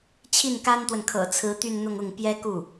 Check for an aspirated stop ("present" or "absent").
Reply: present